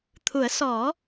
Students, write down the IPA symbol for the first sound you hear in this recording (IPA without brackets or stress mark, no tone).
t̪ʰ